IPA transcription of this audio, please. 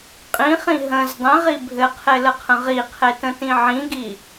qʼĩχĩ ɦə̃z dˤẽʁi bʱɘqʰeləqʰə̃ ʁiqʰetə̃tĩ ʕĩɡi

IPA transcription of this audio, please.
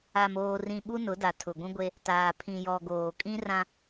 a˨moː˨rĩ˨ ɓu˦nʊ˨˦da˨ tʰʊ˨ɡʷũ˦ɡʷe˦ | taː˨pʰĩ˨jɔ˨ ɡoː˨kʼĩ˦rã˦

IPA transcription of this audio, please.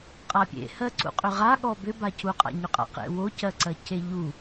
qʼapʲḛhɜǀṵ qʼʏʁaɠɔ bʏbacuqʼa̰ ɲʏqʼa̰qḛ wocɜǀɜce ʎu

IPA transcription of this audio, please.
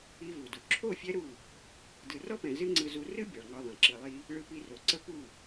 i˦vu˨du˨ ǁʰo˦˨ fʲɛ˦ɾu˦˨ | dɯ˨rɔ˦pɛ̃˨ zɨ˦ ŋ͡ǀɯ˧zu˧ rɨ˦ bʲɒ˨ɭŋɒ˧ðˤɛ̃˨ ǁɯ˨lˠi˧ | ɭɯ˧pi˧ro˨ǀə˦ pu˦˨

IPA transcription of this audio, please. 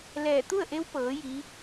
lɛː˧˩ t̪u˥˨ə̯ʔe˧˥w pɤː˩˧ ji˧˥

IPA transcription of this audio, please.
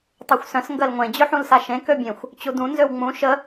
tˤoxʷsœ̃s ŋɡɜlŋʷẽ d͡ʑøħũlsaʃẽ købʲẽxʷ | t͡ɕudũ nzøwŋ͡mũ ʃə

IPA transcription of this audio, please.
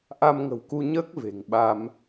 ʔa˧mŋə̤˨˩wku˧ɲəː˦˥k̚ ve̤˨˩ŋɓa˧m

